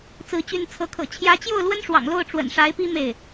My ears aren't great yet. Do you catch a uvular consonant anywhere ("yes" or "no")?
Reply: no